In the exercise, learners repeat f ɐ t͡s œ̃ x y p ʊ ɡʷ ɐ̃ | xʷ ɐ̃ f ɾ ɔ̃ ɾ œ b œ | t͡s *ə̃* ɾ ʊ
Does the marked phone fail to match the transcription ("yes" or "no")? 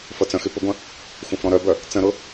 no